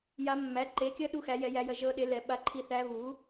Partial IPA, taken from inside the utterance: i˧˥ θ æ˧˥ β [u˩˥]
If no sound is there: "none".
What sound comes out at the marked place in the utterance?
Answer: u˩˥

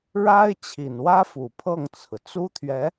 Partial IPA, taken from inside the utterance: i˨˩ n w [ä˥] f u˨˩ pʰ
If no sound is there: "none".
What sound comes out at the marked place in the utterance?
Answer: ä˥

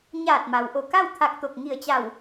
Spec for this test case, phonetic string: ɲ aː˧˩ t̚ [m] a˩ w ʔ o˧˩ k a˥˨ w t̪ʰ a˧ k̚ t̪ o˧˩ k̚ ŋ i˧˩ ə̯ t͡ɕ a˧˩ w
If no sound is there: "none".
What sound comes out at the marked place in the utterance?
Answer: m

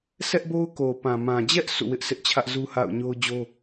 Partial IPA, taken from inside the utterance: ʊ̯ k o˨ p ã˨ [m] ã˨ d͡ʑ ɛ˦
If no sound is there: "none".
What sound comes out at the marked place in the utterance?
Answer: m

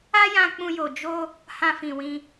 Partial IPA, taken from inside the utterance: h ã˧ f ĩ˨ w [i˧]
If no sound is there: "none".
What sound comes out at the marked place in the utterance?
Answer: ĩ˧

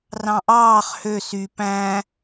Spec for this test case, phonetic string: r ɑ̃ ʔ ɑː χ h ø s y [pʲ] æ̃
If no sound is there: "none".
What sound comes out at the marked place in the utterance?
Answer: p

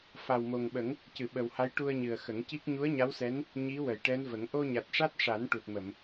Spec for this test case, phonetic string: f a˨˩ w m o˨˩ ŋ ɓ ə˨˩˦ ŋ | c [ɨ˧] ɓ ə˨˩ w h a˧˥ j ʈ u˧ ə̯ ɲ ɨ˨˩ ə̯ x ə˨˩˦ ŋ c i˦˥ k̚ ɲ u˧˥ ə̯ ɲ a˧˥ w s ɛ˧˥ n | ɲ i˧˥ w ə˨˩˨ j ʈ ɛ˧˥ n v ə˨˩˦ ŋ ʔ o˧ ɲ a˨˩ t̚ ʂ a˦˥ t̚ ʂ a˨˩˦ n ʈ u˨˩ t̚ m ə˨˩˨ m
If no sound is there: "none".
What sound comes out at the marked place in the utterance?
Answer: ɨ˨˩˨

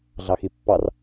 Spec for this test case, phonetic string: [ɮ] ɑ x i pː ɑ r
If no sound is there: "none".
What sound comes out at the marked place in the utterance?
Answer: ɮ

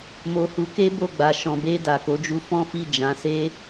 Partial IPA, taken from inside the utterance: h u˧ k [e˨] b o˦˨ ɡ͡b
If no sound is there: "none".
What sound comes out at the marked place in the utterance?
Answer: e˦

